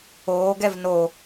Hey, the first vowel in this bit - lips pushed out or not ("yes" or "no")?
yes